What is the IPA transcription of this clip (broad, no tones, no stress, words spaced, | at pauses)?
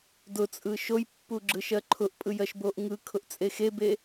dʊt͡sʼɯ ʃojpːu ɡ͡ǁɯʃɜǃʰʊʔpʼɯj ɜʃboʔŋɯkʰʊʔ t͡sʼexebe